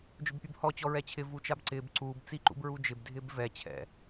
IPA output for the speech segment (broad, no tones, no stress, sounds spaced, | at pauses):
d͡ʒ ʊ b pʲ u b h ɔ t͡ɕ ɔ ɹ ɛ t͡ɕʰ ɪ v u t͡ʃ a b ǀ ɪː b ǀ uː b t͡s i ǃ ṵ b ɹ u d͡ʒ ɪ b dʱ ɪː b v ɛ t͡ɕʰ ɛ̰